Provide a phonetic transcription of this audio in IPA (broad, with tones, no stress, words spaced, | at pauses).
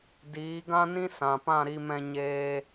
diː˨˦ɡã˦nĩ˦ sã˨pã˦˨ɾi˧mɛ̃˧ ɲeː˧